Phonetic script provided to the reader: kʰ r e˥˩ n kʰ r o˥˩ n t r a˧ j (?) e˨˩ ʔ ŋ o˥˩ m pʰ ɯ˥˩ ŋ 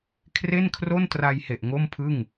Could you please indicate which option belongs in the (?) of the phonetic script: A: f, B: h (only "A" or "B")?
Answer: B